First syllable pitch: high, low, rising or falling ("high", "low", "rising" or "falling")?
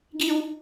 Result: high